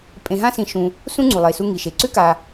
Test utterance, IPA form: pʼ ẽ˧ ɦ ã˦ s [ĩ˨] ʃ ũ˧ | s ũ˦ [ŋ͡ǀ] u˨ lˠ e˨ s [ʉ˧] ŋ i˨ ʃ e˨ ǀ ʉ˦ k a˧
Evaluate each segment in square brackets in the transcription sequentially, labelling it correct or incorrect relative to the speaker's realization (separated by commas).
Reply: incorrect, correct, incorrect